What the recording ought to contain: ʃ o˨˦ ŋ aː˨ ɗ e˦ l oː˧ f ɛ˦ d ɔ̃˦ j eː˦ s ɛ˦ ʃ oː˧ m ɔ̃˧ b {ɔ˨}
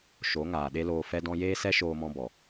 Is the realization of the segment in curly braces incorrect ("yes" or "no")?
no